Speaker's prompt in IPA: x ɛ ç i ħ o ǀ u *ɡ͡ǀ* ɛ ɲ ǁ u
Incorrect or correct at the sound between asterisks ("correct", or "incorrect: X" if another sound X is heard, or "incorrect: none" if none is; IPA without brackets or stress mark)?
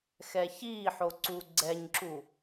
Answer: correct